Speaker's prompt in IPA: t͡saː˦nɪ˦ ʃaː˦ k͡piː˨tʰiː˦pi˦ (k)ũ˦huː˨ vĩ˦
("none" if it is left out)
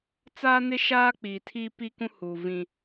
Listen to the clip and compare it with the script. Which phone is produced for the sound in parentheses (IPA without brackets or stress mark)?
k